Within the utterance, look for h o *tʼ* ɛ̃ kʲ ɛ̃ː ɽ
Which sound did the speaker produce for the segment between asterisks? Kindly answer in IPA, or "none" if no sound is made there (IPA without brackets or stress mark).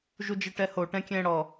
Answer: ʈ